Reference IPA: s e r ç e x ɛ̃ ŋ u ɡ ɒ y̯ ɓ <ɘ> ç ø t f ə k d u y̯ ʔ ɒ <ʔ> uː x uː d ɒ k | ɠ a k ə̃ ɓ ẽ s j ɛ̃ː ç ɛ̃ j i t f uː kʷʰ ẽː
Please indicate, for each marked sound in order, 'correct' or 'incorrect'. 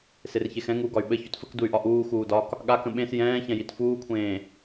correct, correct

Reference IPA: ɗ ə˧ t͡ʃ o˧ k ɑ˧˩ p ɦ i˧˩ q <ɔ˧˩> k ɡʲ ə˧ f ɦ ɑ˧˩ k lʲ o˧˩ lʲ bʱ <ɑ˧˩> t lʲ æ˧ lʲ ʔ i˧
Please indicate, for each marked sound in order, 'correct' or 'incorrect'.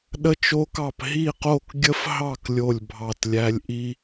incorrect, correct

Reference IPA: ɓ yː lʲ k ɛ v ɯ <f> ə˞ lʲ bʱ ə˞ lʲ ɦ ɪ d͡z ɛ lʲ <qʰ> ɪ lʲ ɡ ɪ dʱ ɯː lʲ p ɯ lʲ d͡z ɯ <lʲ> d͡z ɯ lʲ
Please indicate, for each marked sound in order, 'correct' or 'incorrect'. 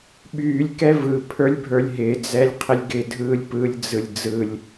incorrect, correct, correct

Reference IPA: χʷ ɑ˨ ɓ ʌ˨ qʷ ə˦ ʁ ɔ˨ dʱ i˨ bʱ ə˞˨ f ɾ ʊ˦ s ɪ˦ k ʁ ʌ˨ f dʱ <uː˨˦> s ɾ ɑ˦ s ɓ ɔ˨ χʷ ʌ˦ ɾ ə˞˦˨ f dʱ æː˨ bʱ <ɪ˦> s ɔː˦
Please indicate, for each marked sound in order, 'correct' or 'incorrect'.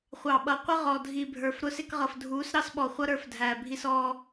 correct, incorrect

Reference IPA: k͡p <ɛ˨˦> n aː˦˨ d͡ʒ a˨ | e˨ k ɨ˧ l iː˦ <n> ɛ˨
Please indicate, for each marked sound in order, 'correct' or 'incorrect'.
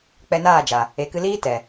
incorrect, incorrect

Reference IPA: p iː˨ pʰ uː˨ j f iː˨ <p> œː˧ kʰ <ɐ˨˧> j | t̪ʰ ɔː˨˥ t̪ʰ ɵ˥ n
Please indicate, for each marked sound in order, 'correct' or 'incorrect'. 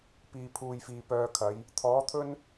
correct, correct

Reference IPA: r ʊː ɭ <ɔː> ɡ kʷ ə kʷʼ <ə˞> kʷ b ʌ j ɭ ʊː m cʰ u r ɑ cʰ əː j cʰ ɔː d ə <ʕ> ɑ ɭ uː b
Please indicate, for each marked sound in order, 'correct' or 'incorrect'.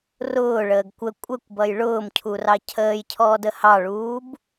incorrect, incorrect, incorrect

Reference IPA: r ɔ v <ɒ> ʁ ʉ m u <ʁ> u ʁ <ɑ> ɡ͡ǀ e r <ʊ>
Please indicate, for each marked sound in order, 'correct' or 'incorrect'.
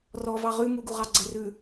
incorrect, incorrect, correct, incorrect

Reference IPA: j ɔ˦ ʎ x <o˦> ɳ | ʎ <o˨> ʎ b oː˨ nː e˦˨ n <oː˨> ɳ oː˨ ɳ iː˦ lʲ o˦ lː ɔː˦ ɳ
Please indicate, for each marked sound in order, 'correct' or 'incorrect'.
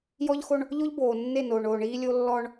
correct, incorrect, correct

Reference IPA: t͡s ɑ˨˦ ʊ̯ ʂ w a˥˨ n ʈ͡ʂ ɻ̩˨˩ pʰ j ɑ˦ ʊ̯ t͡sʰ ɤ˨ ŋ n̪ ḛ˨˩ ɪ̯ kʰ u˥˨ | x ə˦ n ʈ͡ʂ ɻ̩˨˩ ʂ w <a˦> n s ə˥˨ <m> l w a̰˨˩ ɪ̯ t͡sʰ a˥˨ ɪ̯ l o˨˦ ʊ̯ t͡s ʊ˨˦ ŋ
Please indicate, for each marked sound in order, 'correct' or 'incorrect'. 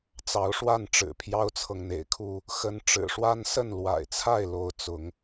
correct, incorrect

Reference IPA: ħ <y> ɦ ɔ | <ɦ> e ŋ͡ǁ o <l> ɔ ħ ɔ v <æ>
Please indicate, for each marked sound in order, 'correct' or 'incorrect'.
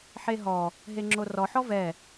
incorrect, correct, incorrect, incorrect

